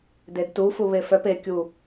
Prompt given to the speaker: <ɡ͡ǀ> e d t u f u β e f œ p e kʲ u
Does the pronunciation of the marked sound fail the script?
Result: yes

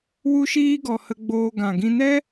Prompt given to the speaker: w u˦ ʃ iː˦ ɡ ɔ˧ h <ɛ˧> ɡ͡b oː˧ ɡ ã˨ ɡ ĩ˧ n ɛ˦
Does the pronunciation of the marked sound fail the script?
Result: yes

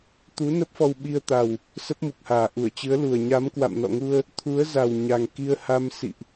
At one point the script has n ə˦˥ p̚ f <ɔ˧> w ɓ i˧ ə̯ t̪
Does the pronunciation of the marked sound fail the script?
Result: no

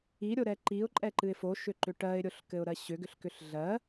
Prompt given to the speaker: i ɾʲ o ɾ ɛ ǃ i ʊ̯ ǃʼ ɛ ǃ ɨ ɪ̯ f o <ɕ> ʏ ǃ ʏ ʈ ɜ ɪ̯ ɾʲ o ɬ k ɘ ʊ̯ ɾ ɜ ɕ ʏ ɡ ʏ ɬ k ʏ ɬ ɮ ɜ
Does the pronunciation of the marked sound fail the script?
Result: yes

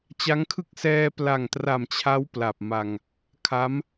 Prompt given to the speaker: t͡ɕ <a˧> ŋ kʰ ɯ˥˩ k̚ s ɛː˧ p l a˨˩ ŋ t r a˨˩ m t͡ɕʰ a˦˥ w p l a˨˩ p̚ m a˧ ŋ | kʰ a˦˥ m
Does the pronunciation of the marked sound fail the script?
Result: yes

